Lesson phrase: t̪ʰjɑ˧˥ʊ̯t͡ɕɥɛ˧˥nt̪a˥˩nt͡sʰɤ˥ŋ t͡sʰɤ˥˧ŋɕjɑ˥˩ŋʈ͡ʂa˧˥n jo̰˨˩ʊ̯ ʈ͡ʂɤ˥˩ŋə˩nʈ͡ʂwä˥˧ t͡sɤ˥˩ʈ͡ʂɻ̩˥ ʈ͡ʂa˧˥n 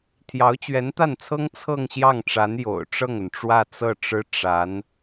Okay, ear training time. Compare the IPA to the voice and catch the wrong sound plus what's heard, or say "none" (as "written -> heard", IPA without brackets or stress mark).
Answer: none